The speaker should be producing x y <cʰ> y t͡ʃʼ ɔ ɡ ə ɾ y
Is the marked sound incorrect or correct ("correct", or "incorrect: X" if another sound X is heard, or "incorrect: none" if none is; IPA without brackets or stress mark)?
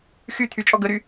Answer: incorrect: t̪ʰ